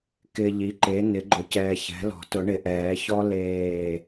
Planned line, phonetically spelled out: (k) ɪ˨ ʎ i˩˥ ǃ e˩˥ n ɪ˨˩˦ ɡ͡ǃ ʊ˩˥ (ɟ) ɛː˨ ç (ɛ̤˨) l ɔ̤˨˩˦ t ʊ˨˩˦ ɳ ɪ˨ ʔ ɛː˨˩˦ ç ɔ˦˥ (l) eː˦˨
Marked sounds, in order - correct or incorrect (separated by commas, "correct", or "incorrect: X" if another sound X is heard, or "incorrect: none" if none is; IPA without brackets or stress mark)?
correct, incorrect: c, incorrect: ɛ̤˩˥, correct